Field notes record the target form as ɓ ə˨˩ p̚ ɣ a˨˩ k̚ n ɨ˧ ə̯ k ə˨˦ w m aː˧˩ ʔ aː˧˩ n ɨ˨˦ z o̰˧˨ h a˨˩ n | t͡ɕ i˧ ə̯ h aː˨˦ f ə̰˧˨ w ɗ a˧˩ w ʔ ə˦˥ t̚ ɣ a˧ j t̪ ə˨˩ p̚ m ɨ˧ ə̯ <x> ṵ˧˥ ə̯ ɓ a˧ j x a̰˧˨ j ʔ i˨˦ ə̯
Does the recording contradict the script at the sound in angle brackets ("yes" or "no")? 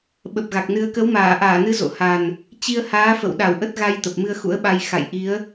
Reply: no